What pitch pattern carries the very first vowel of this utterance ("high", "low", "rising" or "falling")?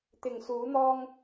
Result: low